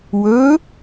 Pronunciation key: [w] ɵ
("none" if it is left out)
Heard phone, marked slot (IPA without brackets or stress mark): w